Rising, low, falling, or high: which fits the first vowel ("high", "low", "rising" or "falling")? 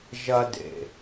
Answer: high